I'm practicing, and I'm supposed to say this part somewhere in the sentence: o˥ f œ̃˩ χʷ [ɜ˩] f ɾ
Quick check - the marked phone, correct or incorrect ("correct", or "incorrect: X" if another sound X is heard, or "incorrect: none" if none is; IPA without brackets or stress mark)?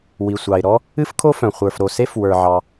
incorrect: ə˞˩